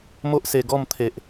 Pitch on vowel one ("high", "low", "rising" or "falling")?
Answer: high